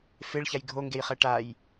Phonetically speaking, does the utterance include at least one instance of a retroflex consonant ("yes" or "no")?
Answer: yes